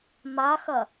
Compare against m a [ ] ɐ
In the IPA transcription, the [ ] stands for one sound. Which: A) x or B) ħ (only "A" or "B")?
A